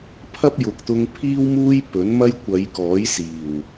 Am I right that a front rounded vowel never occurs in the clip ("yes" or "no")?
yes